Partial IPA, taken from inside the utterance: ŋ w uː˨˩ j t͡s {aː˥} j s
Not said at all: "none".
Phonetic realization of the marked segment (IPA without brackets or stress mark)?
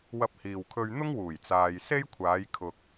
aː˨